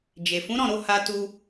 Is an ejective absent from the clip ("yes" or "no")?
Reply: yes